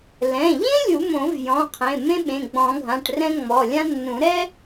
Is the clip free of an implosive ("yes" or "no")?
no